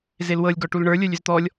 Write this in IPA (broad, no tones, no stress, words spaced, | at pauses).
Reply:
zelwɤlʲ ɡɔʈulɳə˞ lʲə˞lʲʏzt̪ɔlʲ